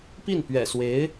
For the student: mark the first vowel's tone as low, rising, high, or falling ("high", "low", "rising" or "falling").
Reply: falling